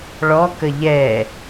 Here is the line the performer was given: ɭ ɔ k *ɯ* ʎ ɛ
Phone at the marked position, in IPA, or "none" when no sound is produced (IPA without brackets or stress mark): ə